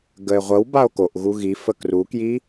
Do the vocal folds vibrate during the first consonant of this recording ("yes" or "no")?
yes